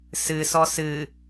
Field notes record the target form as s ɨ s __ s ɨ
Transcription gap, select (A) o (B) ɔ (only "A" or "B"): B